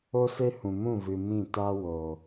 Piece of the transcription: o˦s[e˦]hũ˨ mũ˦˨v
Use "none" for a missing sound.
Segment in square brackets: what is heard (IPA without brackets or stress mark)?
e˦